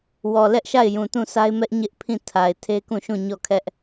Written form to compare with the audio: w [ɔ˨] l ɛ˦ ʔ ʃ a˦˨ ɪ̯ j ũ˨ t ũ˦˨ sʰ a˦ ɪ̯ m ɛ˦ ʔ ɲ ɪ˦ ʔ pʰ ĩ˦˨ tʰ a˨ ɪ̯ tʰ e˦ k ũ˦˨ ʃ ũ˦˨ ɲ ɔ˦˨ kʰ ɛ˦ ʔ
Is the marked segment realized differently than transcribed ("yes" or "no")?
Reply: no